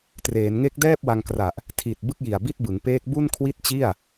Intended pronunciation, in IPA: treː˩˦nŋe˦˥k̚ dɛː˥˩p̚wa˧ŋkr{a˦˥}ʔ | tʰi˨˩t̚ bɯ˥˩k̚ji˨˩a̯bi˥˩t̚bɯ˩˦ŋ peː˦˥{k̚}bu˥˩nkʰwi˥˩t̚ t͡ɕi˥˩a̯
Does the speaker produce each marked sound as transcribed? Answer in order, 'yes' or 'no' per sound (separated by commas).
no, yes